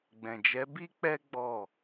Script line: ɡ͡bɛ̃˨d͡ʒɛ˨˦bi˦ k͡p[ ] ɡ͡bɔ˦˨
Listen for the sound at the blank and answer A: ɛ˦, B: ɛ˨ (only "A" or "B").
A